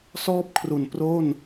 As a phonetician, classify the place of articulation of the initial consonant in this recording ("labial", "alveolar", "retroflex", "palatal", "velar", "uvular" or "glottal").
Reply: alveolar